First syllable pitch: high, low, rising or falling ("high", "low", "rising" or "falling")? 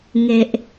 low